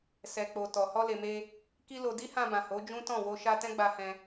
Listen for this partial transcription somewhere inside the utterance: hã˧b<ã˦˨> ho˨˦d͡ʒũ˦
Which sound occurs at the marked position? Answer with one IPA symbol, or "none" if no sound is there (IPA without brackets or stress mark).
ã˨